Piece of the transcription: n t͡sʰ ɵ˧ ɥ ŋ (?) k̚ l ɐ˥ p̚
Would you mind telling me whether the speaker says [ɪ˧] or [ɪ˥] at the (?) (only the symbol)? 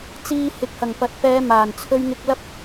ɪ˧